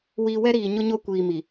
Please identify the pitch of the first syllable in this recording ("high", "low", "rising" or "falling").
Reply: low